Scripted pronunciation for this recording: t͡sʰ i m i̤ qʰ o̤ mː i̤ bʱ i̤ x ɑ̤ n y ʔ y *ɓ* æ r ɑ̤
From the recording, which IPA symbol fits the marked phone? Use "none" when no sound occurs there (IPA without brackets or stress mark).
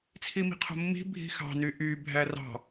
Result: bʱ